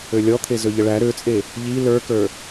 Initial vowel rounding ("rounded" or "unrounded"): rounded